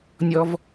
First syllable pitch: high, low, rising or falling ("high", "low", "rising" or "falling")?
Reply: high